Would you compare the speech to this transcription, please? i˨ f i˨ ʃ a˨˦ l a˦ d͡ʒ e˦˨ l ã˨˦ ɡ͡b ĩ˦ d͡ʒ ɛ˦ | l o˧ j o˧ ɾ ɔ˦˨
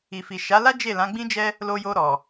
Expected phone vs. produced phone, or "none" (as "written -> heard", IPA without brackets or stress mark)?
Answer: ɔ˦˨ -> ɔ˨